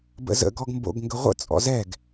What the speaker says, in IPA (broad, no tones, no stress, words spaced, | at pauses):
bə̰zə̰ ɡɔɡmbo̰ɡ ŋɡəʁʷə̰ t͡sʼɔ̰zɛɡ